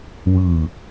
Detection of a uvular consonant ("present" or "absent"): absent